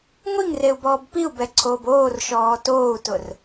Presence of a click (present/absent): present